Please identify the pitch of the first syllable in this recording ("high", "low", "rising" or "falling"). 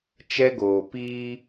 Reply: high